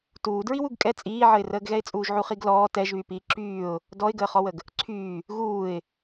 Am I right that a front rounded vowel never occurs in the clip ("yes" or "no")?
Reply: no